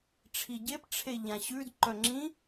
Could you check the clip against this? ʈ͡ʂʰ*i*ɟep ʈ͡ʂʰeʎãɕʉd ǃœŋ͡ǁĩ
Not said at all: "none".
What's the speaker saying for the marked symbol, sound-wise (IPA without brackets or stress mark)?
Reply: i